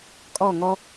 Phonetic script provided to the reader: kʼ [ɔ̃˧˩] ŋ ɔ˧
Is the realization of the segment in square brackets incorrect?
yes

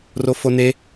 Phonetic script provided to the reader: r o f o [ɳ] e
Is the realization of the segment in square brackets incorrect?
yes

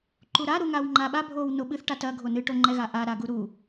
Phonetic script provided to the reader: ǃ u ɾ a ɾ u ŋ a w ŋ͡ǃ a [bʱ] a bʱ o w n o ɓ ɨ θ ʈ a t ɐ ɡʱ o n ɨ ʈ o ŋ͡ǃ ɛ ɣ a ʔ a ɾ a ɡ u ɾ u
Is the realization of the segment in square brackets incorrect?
yes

